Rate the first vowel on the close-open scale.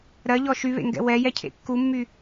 mid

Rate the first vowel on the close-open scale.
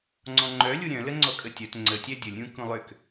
mid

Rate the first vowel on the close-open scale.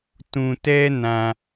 close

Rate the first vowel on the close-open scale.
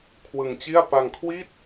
close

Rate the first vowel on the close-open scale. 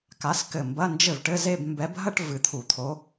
open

